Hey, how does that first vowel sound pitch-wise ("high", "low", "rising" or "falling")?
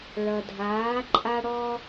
low